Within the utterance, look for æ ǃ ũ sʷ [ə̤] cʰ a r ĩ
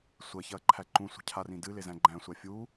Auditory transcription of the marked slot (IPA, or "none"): ə̤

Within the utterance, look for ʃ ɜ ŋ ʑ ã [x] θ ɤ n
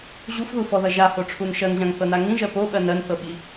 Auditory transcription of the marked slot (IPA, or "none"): ŋ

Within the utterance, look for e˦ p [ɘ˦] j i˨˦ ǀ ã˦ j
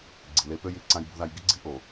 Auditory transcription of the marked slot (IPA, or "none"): ø˦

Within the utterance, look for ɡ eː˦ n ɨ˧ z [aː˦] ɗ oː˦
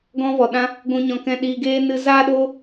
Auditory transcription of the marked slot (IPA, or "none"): aː˦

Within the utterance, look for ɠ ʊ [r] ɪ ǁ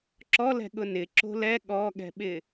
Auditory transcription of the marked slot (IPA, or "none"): n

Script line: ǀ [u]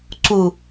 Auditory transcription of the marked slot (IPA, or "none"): u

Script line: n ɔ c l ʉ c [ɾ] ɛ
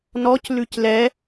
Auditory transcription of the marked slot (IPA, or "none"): l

